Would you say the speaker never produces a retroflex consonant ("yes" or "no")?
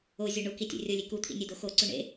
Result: no